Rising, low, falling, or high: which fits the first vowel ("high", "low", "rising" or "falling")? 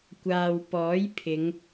low